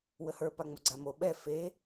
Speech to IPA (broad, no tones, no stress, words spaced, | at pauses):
wəhə˞ paŋ͡moɡ͡ǀamo ɓɛ fe